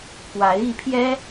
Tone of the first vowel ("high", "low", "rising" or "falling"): rising